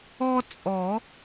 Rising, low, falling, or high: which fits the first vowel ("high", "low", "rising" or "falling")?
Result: high